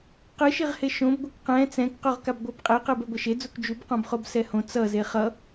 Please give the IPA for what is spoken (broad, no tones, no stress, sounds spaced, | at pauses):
q ɯ ʃ i ʁ h e ʃ õ b ɡʷ ʌ k q ɛ̃ t͡s ɛ̃ k q u ʁ k a b ɡʷ a b qʼ e q ɯ b ɛ ɡʷ ʌ ʃ e d͡z u k d͡ʒ u b q õ b χ o b s ɛ h õ t͡s ʌ z e χ ʌ